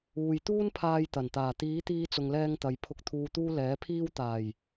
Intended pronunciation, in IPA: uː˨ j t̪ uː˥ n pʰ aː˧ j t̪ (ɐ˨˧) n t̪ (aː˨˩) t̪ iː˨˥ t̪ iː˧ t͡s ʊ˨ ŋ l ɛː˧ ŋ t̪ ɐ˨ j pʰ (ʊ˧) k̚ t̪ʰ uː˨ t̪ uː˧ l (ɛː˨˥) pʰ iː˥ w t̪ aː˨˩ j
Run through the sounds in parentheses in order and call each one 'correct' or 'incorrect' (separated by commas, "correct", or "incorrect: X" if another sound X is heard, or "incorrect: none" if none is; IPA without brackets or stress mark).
incorrect: ɐ˨˩, correct, incorrect: ʊ˨, correct